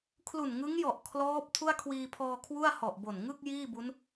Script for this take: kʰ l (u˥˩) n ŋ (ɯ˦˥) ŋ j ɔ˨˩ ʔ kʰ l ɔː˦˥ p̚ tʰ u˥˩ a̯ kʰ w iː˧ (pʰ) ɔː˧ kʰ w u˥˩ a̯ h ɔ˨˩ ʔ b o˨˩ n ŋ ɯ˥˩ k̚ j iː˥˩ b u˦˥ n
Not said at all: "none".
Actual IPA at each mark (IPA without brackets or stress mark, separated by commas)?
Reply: u˨˩, ɯ˦˥, pʰ